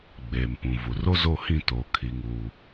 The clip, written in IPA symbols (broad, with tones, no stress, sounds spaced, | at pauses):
ɡ͡b eː˨ m p ũ˨ v u˨ r o˦ z o˦˨ h ĩ˦˨ t o˨ kʰ i˨ ŋ uː˨